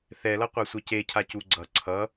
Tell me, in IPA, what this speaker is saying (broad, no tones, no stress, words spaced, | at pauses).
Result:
θɛlʌ qʷasʷececʰa cuɡ͡ǀʌ ǀʰʌ